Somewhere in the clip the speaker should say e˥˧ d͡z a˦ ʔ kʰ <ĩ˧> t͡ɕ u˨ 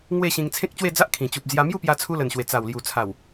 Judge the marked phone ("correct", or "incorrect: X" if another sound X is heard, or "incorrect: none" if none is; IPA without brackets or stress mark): incorrect: ĩ˨˩